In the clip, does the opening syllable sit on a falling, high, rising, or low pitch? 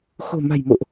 low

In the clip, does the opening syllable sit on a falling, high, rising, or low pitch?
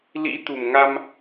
rising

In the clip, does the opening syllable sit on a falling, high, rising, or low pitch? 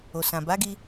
low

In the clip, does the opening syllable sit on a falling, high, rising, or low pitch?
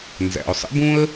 low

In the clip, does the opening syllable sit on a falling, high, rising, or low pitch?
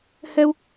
high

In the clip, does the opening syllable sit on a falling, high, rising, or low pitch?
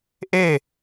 falling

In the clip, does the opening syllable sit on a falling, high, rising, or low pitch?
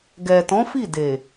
low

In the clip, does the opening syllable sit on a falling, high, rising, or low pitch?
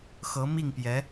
rising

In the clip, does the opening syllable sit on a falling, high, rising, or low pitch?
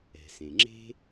low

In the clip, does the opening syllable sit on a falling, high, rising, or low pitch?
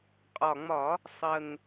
low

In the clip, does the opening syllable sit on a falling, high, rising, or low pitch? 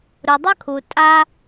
low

